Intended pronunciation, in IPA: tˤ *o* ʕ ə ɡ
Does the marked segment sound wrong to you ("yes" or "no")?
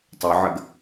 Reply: no